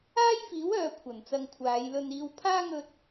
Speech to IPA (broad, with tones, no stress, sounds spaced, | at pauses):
aː˥ j f iː˨˥ w œː˨ kʷʰ ɐ˨˩ n t͡s ɐ˧ ŋ kʷʰ aː˨˧ j l ɵ˧ n iː˧ w pʰ aː˥ ŋ ɵ˧ t̚